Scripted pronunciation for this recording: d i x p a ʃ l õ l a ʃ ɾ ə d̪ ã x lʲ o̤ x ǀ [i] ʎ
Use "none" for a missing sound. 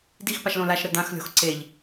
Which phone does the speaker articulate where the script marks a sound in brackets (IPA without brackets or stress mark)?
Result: e